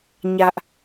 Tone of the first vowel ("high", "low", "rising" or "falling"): high